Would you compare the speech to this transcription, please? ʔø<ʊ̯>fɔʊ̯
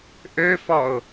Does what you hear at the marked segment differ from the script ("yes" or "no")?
yes